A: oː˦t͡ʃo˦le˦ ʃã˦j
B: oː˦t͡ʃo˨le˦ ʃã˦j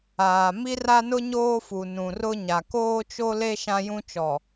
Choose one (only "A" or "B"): A